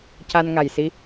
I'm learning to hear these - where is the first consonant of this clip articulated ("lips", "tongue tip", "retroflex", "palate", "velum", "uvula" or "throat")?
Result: palate